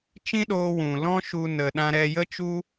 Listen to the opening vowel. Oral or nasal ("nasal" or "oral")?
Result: nasal